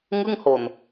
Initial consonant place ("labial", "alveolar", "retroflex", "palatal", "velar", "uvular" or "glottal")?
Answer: velar